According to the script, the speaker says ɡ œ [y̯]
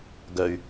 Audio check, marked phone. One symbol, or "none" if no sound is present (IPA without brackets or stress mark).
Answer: y̯